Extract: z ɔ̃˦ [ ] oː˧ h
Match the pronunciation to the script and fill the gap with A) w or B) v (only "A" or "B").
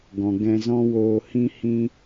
A